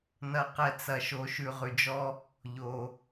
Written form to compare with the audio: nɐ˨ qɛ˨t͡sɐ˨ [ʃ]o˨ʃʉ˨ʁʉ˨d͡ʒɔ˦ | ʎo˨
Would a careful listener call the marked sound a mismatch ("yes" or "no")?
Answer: no